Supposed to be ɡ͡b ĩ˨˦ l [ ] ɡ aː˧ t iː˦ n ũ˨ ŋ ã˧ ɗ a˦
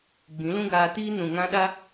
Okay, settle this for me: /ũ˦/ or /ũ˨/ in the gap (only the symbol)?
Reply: ũ˦